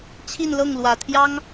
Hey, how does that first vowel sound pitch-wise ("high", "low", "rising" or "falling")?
falling